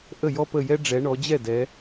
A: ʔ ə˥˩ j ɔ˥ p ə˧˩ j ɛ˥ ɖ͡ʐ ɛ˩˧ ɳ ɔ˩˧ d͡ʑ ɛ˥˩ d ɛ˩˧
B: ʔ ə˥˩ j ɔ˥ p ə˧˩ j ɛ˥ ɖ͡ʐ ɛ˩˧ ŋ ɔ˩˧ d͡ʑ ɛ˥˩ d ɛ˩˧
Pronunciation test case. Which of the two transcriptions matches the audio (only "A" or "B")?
A